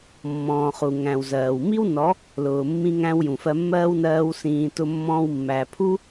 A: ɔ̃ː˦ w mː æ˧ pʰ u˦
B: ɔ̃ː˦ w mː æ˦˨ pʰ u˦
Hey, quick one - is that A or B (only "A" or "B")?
A